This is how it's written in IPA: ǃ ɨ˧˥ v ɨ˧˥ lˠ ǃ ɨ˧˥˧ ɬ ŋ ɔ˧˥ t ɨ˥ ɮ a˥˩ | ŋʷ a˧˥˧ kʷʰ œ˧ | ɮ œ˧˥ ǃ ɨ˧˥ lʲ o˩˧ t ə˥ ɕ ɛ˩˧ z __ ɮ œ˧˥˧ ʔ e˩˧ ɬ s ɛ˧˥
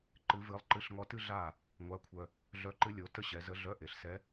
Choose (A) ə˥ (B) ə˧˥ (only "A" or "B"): B